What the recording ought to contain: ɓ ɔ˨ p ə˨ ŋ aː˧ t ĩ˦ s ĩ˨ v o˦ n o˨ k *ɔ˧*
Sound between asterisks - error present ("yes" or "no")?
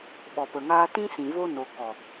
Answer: yes